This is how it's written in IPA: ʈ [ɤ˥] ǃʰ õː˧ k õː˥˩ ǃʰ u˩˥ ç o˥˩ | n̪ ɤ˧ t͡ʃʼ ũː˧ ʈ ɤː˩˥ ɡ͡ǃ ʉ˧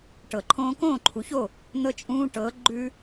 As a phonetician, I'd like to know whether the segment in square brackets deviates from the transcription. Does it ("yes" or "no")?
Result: yes